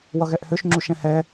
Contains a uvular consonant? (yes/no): no